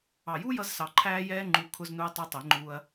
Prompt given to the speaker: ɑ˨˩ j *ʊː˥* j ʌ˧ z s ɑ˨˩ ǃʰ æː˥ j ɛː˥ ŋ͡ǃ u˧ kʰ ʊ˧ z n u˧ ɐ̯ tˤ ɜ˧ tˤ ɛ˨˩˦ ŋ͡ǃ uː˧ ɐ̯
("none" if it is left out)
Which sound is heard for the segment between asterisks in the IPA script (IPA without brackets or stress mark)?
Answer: uː˥